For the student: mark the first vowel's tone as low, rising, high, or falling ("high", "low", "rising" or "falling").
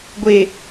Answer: low